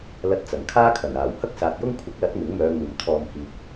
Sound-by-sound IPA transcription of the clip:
l ɐ˧ t̚ t͡s ɐ˨˩ ŋ kʰ aː˥ kʰ ɐ˨˩ n aː˨˩ w h ɐ˥ k̚ s aː˨ t̚ j ʊ˥ ŋ kʷʰ ɪ˨˥ k̚ l ɐ˨˥ t̚ m ɪ˨˥ ŋ m œː˨˧ ŋ uː˨ m t̪ʰ ɔː˨ m h iː˨ k̚

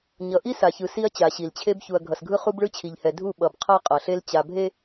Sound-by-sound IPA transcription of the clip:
ɲ ʌ˨ ʔ i˦ s a˨ ç ɯ˨ s i˦ ɐ̯ t͡ɕ a˨ ɕ i˨ l t͡ɕʰ e˦ b ç u˨ ɐ̯ ɡʱ ʌ˨ s ɡʱ ɯ˦ χ u˦ b ɭ ɯ˦ t͡ɕʰ i˨ ʎ h ɛ˨ dʱ u˦˨ ɓ ʌ˨ b qʰ a˦ qʼ ʌ˨ ɬ e˦ l t͡ɕ a˨ bʱ e˦

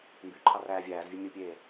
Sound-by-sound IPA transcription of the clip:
m b y ǃʰ ɑ r æː vʲ æː z vʲ ɯ mʲ u pʲ eː

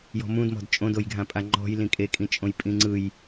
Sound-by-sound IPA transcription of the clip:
j ɔ̤ m ũ d m ɔ̤ d t͡ʃʼ õ d o j ɡʱ ã pʼ a ŋ͡ǃ ɔ̤ j l ĩ kʼ e kʼ ĩ t͡ʃʼ õ j pʼ ĩ ŋ͡ǀ ɯ j

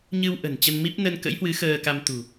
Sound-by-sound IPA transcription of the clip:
ɲ ɨ˧ w ʔ ə̤˨˩ n t͡ɕ ə˧ n m i˦˥ p̚ n ə˧ n k ə̰˧˥ j h w ɨ˨˦ x əː˧ k a˧ m t̪ ṳ˨˩

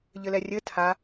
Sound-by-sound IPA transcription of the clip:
ʎ ɘ l ɛ rʲ ɘ tʰ a

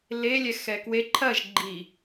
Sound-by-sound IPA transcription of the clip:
l e lʲ ɛ x ɛ k w e ǃʰ ɐ ʒ ɡ͡ǃ i

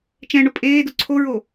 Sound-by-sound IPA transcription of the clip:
t͡ʃ ɛ̃ ɳ ʊ pʼ eː d ʊ ǀʰ o ɹ o

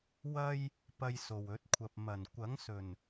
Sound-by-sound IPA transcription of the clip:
w ɐ˥ j | p ɐ˧ j s o˨ w ɵ˨˥ t̚ kʷʰ ɐ˧ p̚ m ɐ˨˩ n kʷ ɐ˨˥ ŋ s ɵ˨˩ n

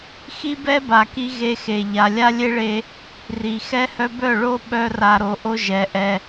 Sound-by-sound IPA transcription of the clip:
x i˦ b ɛ˦ b a˨ k i˧ ɣ e˧ x e˨ ʎ a˨ lʲ a˦ lʲ e˦ ɭ e˧ | r i˨ x ɛ˦ h œ˦ b œ˦˨ ɭ o˦ ɓ œ˦ r a˧ ɾ o˨˦ ʔ o˦ ʒ ɛ˨˦ ʔ ɛ˧

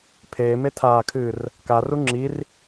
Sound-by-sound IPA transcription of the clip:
pʰ eː m e tʰ aː kʰ ɨː r | k a r u ŋ͡ǁ i r

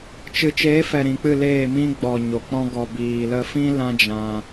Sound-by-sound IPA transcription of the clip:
t͡ʃ ɨ˨ t͡ʃ eː˨˦ f ɛ˨ ɾ ĩ˨ k͡p ɨ˦˨ l eː˦˨ m ĩ˦ ɡ͡b ɔ˨ ɲ o˨ k͡p ɔ̃˦ ɡ ɔ˧ b iː˨ l ə˧ f ĩ˦ l ã˦ d͡ʒ ã˧

